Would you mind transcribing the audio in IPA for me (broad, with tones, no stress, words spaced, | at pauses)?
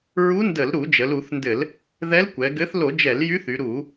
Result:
ɹu˧˥ndə˧˩˧lɾu˧˩˧ d͡ʒə˩˧lu˧˩˧θndɘ˧˩˧l | ðɛ˧˥lkʷɛ˩˧ɡɘ˧˥θ lo˧˩˧d͡ʒɛ˧˩˧ljy˧˥θ y˩˧ɾu˧˩˧